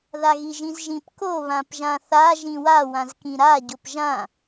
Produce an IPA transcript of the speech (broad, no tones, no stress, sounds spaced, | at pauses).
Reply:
ð a ɣ i ʒ ĩ z ʒ ĩ p k o β ã p ʒ ã θ a ʒ ĩ w a w ã z k ĩ ɾ a ɟ o p ʒ ã